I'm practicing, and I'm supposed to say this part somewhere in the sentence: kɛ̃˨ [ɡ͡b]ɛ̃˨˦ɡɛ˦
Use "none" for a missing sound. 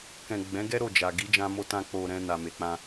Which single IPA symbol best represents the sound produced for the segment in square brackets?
ɡ͡b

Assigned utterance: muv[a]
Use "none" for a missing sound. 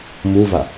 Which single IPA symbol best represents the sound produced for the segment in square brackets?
a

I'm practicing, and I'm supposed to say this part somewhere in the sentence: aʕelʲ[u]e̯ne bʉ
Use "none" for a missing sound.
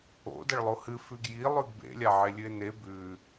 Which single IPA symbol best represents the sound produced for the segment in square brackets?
ʉ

